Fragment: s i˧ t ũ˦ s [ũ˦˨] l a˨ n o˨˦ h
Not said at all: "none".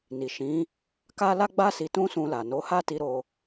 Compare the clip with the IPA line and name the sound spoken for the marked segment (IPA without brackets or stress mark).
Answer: ũ˧